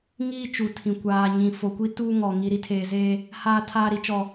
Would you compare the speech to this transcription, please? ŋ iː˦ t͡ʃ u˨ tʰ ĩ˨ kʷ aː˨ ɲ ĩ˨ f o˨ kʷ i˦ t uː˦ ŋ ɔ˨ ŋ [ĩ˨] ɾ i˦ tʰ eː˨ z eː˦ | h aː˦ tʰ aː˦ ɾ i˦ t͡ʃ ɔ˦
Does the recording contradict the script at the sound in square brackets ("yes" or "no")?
yes